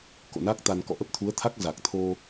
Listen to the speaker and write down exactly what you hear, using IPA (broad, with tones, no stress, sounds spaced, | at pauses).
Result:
k o̰˧˨ n a˦˥ k̚ t̪ a˧ n k ɔ̰˧˨ ʔ ə˦˥ p̚ t̪ʰ u˨˦ ə̯ t̪ʰ a˦˥ k̚ z a˨˩ k̚ t̪ʰ o˧